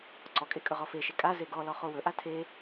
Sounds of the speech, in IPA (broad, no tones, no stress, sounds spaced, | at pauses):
ǀ ɔ kʼ e kʼ ɵ ʁ ɔ f e ʃ e kʼ a z e ɡ ɔ l ɔ χ o w ɵ ʔ a tʰ e